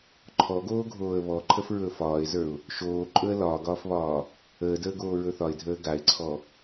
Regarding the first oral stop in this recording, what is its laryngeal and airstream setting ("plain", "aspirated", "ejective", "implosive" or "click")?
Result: click